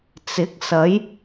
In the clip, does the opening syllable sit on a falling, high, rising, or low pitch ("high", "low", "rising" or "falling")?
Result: rising